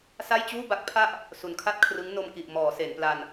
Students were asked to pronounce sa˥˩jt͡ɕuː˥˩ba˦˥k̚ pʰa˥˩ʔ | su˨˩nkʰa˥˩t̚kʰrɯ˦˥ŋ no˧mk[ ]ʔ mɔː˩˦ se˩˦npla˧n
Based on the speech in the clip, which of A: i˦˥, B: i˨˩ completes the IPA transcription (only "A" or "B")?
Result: B